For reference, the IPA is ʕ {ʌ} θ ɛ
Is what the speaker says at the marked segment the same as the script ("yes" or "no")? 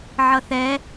yes